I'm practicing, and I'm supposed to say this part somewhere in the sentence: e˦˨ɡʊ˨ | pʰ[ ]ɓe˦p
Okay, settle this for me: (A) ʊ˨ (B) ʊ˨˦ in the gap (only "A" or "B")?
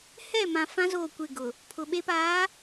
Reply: A